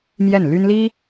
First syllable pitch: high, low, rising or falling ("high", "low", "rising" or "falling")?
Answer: falling